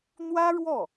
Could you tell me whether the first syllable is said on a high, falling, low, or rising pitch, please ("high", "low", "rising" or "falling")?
high